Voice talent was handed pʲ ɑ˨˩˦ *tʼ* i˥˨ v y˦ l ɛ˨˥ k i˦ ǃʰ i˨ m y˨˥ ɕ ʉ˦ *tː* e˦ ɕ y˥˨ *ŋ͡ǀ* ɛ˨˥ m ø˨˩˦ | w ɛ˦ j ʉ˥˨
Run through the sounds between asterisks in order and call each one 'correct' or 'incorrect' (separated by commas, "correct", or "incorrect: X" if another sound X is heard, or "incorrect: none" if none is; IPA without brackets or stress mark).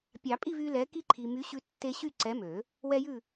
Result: incorrect: pʼ, correct, incorrect: ǀ